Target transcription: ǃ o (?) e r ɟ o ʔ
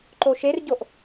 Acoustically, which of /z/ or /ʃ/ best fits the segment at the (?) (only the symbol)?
ʃ